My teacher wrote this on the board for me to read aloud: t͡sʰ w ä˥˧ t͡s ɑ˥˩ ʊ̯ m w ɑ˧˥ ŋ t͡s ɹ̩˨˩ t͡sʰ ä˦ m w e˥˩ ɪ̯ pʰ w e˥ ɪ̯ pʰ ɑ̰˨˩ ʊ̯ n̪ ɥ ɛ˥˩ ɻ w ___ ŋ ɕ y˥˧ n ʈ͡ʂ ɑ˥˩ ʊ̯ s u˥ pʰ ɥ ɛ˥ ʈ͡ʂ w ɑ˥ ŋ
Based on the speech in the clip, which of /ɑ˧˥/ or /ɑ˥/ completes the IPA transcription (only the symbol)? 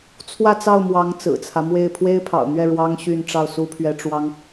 ɑ˥